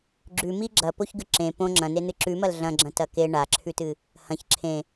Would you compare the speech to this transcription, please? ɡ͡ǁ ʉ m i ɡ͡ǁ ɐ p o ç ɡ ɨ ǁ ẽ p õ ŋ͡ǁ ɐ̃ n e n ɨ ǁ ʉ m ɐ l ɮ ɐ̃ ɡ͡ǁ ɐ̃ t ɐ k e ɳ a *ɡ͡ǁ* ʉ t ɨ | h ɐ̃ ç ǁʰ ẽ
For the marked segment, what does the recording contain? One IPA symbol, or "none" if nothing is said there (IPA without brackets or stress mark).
ǁʰ